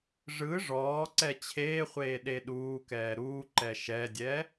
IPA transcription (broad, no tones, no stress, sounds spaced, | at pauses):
ʐ ɯ ʐ ɔː ǀ ɛ t͡ɕʰ eː χʷ eː ɗ e ɗ uː k ɛː ɾ uː ǃ ɛ ʃ ɛ dʲ ɛ